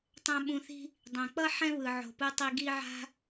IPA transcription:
tˤã˦ɓũ˧θi̤˦ | dˤɛ̃˨k͡pʌ˦ ħɛ̃˦βɯ˨ʕo̤˨pɯ˧ tˤi˧ɡi˦ʕa̤˦

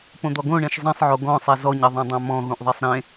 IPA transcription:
põd̪ɔɡõɳẽʃ zˤĩsˤʕo ɡɔ̃sˤɛ zɔɲɘðˤõdˤã mɔ̃ɣũʔðˤɛsˤ ɾẽ

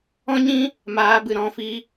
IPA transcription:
ɔ̃˦ɲĩ˦ | maː˨˦bɨ˨ ɾɔ̃˧ fi˧

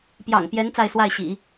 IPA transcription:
pjɑ̰˨˩ŋpjɛ˧˥n t͡sa˥˧ɪ̯swa˥˩ɪ̯ɕḭ˨˩˦

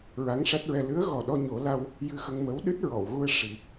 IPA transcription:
ɹa˧˥ŋʂa˦˥t̚ɹɛ˧ lɨ˧˥ə̯ɣɔ˨˩ ɗɔ˧ɲo˨˩˦ la˧w | jɨ˧xə˧ŋmə˧˥w ɗɨ˦˥t̚ɹɔ˨˩˨wɣu˧ə̯ ʂi˨˩

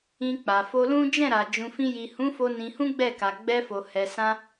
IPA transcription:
ĩ˧k͡pa˨fo˧lũ˦ d͡ʒɛ̃˦˨ɾa˨ d͡ʒũ˨fĩ˧ji˨ hũ˨˦fo˧ nĩ˧hũ˦ɡ͡bɛ˦˨ ka˨ɡ͡bɛ˧fo˨hɛ˨ sã˧

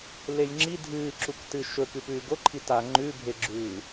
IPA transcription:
lejŋ͡ǁi dʱɨːǁuktɨ ʃɵkɨpʉː ɡoǃʰi ta ŋ͡ǃʉbʱeɡ͡ǁʉː

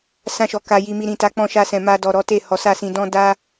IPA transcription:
sã˧ʃɔ˨ka˨ ji˨mi˨ɾĩ˨ta˨˦ k͡pɔ̃˧ʃa˧sɛ̃˨ ma˧dɔ˨ ɾɔ˨˦te˦˨hɔ˨˦ sa˦˨sĩ˧dɔ̃˦ da˦

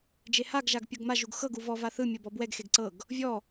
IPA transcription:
d͡ʒehaɡ ʒaɡpʲɤɡma ʒuɡxɤɡ uvɔ vaθɯ mʲɤbɔbwɛɡ xeɡǀɤɡ | vʲɔ

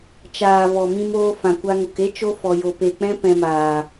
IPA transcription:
t͡ʃaː˨ vɔ˨mĩ˧moː˧ fã˨kʷa˧ ŋo˨ke˦ t͡ʃo˦ fɔ˧jo˧ pe˨k͡pɛ̃˦ pɛ̃˧maː˨

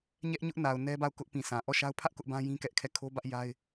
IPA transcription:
ɲɛ˦ʔɲʊ˦ʔ na˨ʊ̯nɛ˦ba˦˨ʊ̯ kʊ˦ʔpĩ˨sʰã˨ ʔɔ˦˨ʃa˦ʊ̯ pʰä˦ʔ kʊ˦ʔbã˦ jĩ˦kɛ˦ʔkʰɛ˦˨ kʰo˦bä˦ʔ ja˦ɪ̯

